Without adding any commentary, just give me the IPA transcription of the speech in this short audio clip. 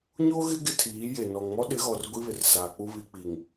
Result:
ɲo˦ɣɪ˦ ɡɪ˦tʰiː˨˦je˨ nɔ˨ŋ mɔ˦ ɗɪ˨˦ɣɔ˨r ɡʷi˦βɪ˨rsaː˨k͡pu˦ βi˨k͡pi˨ŋ

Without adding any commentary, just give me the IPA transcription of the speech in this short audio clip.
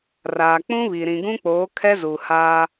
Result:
raː˨k͡pũ˦βi˨ ɾĩ˨ɡũ˦k͡poː˨˦ kʰɛ˦zu˨ haː˦

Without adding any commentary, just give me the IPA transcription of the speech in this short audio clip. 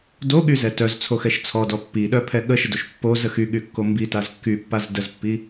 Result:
doɠyzɛ tœzt͡sʰoxɛʃ t͡sʰɔdɔ pːiɗœpʰɛ ɠəʃədoʃ pːozə xyɠykːo mbitaz kːypːaz dəzpːi

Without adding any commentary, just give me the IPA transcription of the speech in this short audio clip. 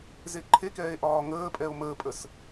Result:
zeǃʰekɛːe̯ ʔɒːŋəːpʼɛo̯ məːpʼəs

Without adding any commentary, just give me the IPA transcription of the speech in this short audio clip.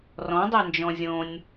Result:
rɔ̃dˤend͡ʒɔ̃ zʲõnʲ

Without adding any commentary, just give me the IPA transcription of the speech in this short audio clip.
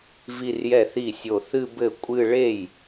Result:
vi˥˧rjɛ˥˩θi˥˩ sʲo˧˩θɨ˥˧ bɘ˥˩ kʷʼɨ˥˧ ɭe˥˩j

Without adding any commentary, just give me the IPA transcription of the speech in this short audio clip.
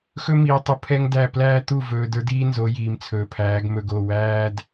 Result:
xɵ˦miː˨tˤu˨ pʰɛ˦ŋdæ˦˨ plæː˦ t̪u˦˨vɵː˨d ə˞˦diː˦nzo˨˦ jiː˨mt͡sʰɵː˨pʰæː˨˦ɡ mɵ˨ɡo˦˨ wæː˦d

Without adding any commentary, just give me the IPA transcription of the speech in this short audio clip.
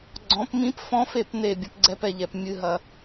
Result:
ɡ͡ǀɔ̃˨˦p mĩ˦p fɔ̃˦fe˦˨pne˦˨ bʲɐ˦pɡ͡ǀɛ˦pɛ˦ʎɛ˨p mʲɨ˦ɦɐ˦

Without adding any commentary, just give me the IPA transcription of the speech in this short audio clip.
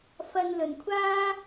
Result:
fɐ˧nlɵ˨˩nkʷʰaː˥

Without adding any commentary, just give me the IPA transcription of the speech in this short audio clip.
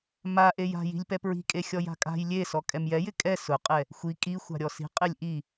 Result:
maʔej a̤ ji̤lʲpɛpɹi̤kʼe xʲɔja̤kʼa̤j lʲe sɔkʼɛmjɛjɪ kʼɛ sʊqʼɛ | xʷi kʼi xʷa̤ɾʲɔsi̤ qʼɪlʲʔi

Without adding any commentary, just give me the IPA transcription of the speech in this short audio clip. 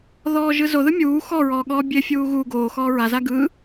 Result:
ðɔːʒɯzoðɯ mʲuː xɔɹɔː ɠɔːbʲefʲuː ɣu ɡoːxɔː ɹaza ɡɯ

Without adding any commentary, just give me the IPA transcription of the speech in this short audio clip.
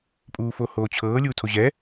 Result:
pʼuːfohoːt͡ɕʰɤː lʲuːtʰoʑɛː

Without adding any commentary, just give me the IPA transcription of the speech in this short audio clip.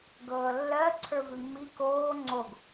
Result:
ɡɤːlːɜ ǀʰə˞vʉmːi koː ŋ͡ǀoɡ

